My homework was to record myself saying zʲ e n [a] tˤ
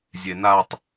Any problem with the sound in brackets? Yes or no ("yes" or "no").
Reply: no